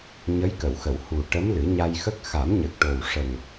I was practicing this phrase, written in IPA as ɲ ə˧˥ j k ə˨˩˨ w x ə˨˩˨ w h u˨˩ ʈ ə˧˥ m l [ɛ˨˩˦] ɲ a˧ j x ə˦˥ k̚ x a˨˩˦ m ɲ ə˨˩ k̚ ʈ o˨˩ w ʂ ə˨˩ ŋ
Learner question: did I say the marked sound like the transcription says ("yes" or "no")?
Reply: no